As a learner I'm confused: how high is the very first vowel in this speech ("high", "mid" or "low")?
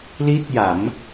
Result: high